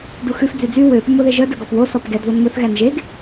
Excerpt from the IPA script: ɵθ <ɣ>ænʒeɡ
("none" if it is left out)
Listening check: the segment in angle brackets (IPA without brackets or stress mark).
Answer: ɣ